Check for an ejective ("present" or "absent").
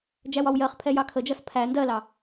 absent